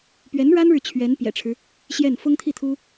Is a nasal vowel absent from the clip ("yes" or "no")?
yes